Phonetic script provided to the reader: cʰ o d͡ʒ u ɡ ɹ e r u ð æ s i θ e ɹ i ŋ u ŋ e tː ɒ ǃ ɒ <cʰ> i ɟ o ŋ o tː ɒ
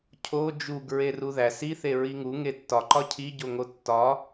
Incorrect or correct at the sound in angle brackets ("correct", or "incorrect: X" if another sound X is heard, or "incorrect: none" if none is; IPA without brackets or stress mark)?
correct